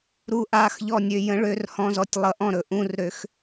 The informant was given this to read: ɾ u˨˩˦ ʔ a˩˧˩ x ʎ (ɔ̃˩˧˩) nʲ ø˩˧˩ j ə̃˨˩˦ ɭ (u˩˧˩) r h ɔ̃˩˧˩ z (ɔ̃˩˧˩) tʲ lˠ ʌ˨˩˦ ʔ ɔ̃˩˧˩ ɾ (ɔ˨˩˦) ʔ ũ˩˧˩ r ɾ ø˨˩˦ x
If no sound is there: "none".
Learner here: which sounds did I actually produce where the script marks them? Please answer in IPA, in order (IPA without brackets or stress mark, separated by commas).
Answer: ɔ˩˧˩, ø˩˧˩, ɔ˩˧˩, ɵ˨˩˦